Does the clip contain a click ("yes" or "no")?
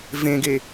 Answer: no